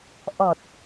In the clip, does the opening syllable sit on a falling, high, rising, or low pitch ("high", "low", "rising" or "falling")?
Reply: low